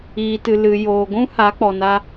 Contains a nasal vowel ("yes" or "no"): yes